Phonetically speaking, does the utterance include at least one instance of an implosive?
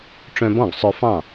no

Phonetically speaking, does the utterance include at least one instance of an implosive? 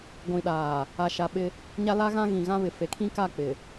yes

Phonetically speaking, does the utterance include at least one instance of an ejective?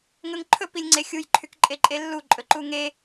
yes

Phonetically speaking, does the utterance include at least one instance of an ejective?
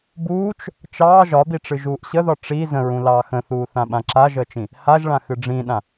no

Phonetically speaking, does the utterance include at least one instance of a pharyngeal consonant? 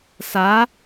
no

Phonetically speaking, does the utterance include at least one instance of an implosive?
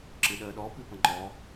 yes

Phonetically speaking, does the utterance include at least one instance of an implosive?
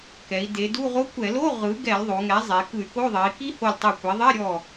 no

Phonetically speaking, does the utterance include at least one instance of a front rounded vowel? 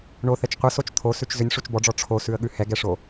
yes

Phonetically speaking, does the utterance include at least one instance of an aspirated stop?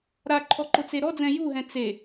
yes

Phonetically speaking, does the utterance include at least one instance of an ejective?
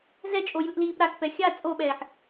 yes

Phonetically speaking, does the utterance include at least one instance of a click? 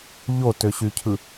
no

